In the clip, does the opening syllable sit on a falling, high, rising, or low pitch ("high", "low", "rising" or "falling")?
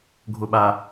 low